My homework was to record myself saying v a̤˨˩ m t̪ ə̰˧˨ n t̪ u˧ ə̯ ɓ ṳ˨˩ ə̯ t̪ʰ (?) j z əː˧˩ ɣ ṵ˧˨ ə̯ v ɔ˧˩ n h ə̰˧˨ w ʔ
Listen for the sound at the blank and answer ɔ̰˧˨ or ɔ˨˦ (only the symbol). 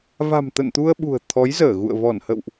ɔ˨˦